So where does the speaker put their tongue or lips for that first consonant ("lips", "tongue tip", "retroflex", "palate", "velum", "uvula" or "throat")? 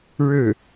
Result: retroflex